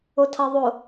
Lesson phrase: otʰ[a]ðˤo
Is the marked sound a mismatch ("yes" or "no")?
no